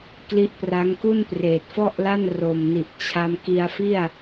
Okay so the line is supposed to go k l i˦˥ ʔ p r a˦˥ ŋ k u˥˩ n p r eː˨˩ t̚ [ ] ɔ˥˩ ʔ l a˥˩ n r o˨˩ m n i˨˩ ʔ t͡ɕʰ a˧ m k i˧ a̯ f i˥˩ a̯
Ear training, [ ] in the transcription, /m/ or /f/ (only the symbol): f